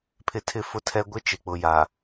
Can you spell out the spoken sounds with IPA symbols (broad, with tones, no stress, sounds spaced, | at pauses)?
pʰ ɪ˦ tʰ ɪ˦ f ʊ˦ tʰ ɛ˦ ɡʷ ɪ˦ t͡ʃ ɪ˨ k͡p ʊ˨ j a˨